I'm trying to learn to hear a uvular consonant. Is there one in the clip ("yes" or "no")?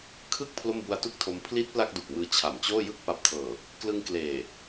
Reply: no